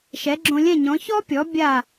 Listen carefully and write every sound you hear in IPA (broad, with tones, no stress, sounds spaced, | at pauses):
ʃ ɛ˩˥ ɡ͡ǁ õ˧ lʲ ɛ̃˥˩ ɲ ɔ̃˩˥ ç ɔ˥ pʲ ɔ˩˥ bʲ a˥˩